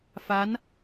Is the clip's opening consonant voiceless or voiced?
voiceless